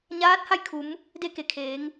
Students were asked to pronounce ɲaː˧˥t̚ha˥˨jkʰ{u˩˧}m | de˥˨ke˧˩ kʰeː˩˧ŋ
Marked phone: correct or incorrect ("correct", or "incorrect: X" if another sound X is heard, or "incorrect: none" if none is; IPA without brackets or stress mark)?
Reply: correct